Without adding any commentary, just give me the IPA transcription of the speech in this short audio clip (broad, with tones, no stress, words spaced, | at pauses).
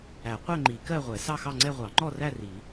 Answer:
æ˨˩˦ qʷɛ˥˧ŋ͡ǃi˨˩˦ kɜ˥˧ʁʷɛ˨˩˦ sɑ˥˧xɑ˥˧ŋ͡ǀɛ˥˧ ʁʷɑ˨˩˦ŋ͡ǃɔ˥˧ræ˥˧ ri˨˩˦